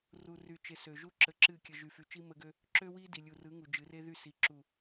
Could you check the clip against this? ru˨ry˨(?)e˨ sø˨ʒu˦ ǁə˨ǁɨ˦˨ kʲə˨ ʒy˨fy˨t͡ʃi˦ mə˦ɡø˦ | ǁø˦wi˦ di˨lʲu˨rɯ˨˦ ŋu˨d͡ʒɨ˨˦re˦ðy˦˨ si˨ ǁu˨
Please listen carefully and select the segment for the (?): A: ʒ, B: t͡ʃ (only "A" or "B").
B